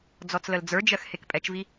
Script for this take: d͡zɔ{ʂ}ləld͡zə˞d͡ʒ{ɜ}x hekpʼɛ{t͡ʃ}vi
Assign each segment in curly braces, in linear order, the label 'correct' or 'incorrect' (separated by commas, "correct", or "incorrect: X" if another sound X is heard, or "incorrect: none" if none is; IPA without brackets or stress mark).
incorrect: t͡s, correct, correct